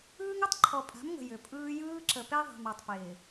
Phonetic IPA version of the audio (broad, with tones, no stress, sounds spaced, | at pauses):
ɯː˦ ŋ ʏ˦ tˤ ǃʰ ɔ˨ pʼ a̤˨˦ m ŋ ə̤˨ j ʏ˨ pʼ ɯː˦ j ɯː˦ ǁ ə˨ p e˦ ðˤ e̤˨ m a˨ tˤ p ɪː˨